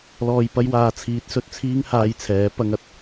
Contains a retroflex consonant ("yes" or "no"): no